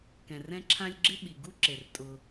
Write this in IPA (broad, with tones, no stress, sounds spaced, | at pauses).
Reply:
k ɛ̃˩ r ɛ̃˦ ǁʰ ã˦ lʲ ɡ͡ǁ ɪ˥ ɓ i˩ ɡ u˥ ǁ e˩ r tʼ ʊ˨